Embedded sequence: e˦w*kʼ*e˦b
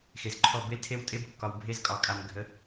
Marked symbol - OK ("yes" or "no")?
no